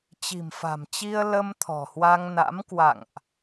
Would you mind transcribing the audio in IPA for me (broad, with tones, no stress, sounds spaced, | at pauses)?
t͡ɕ i̤˨˩ m f a̤˨˩ m t͡ɕ i˧ ə̯ l ə˧ m t̪ʰ ɔ̤˨˩ h w a˧ ŋ n a̰˧˥ m k w a̰˧˨ ŋ ʔ